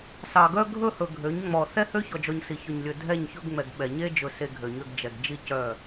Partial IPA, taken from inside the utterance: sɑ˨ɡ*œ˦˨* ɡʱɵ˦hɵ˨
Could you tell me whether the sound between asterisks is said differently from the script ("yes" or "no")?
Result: yes